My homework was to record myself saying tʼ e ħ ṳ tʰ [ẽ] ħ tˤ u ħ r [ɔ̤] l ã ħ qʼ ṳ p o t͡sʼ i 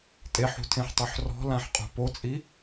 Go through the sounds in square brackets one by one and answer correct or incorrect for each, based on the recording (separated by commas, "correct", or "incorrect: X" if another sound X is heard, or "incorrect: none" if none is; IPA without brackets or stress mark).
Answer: correct, correct